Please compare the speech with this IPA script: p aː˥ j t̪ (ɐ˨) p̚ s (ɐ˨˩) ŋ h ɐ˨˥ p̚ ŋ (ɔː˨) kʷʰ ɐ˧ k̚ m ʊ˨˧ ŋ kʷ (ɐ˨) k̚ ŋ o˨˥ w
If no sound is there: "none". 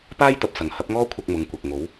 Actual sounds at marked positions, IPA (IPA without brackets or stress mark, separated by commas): ɐ˨, ɐ˨˩, ɔː˥, ɐ˨